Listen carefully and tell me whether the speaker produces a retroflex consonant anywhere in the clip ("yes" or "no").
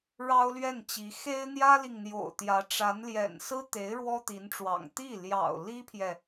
yes